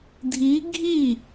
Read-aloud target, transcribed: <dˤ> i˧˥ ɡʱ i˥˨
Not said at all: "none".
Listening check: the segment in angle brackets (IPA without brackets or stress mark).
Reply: dʱ